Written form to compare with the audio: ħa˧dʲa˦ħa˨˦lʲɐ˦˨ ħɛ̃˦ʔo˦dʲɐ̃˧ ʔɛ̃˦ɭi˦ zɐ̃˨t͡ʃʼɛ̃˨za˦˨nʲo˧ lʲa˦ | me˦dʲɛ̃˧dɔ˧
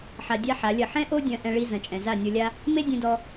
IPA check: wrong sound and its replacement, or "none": none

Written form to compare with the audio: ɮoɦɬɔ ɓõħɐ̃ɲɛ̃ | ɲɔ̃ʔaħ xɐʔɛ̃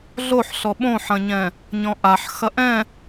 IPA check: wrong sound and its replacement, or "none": ɦ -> ħ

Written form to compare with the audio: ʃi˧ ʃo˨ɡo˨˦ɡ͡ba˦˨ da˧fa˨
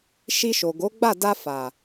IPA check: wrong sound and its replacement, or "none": none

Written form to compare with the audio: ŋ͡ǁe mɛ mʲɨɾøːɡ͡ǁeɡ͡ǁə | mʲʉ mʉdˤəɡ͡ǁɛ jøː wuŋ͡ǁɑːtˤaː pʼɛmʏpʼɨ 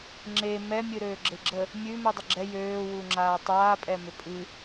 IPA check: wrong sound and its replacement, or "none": ɑː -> aː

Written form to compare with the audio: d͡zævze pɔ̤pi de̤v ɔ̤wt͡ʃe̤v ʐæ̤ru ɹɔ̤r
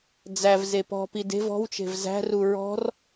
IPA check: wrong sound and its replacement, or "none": ʐ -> z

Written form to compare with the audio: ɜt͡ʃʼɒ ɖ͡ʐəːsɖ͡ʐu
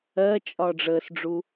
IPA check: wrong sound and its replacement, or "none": none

